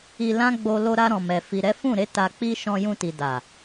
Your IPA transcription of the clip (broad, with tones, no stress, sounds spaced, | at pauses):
i˧ l ã˦ ɡ͡b o˧ l o˧ ɾ a˧ ɾ ɔ̃˨ m ɛ˨ f i˨ ɾ ɛ˨˦ f ũ˦˨ ɾ e˨˦ t a˧ k͡p i˦ ʃ ɔ̃˧ j ũ˧ t i˨ d a˨